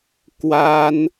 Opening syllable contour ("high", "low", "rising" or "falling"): high